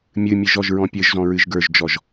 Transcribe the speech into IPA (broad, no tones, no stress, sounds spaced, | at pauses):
mʲ ɨ mʲ ɨ ʒ ɔ ʒ ɹ ɔ̃ pʲ ɘ ʒ z ɔ̃ ɹ ɨ ʒ ɡ ə˞ ʒ d͡ʒ ɔ ʒ